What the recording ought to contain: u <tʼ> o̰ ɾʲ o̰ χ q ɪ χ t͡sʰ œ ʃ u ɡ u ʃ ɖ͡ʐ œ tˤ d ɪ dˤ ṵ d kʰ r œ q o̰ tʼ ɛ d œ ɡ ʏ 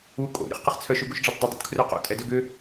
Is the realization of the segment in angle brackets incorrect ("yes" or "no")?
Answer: yes